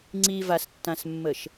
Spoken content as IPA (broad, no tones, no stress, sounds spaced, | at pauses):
ŋ͡ǀ i v a s tː ã s mː ə ʃ